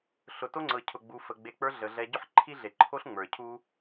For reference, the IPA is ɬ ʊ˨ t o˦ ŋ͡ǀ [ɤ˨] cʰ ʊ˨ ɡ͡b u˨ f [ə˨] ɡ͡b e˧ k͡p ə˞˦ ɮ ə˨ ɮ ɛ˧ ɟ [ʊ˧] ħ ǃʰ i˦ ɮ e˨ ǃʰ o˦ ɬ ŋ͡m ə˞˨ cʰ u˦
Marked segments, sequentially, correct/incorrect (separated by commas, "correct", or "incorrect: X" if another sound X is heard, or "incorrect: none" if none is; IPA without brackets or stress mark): correct, correct, incorrect: ʊ˦